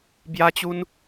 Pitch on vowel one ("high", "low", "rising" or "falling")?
high